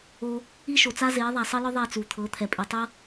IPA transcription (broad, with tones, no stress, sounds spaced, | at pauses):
o˧ | i˦ ʃ o˨ t͡s a˦ z eː˨˦ ðˤ a˨ sˤ ɤ˦ l ɔ˦ ðˤ ɛ˦˨ t͡s u˨ t̪ʰ ɤ˨˦ t̪ʰ ɛ˨ pʼ i˨ tˤ ɤ˦